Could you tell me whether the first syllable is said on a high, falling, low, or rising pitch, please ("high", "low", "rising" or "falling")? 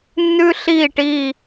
high